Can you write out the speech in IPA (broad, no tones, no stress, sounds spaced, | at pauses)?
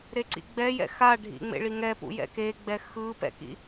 ɾ e ǀ ḭ ɡ͡b ɛ j ɛ̰ x a ɖʱ ḭ ŋ͡m ḛ ɭ i ŋ ɛ p ṵ j ɛ̰ k e ɡ͡b ɛ x ɯ p ɛ̰ k ḭ